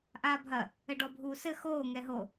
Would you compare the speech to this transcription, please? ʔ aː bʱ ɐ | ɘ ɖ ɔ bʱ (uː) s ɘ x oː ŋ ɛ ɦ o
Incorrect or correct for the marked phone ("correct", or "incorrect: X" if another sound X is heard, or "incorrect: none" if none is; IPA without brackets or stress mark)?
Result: correct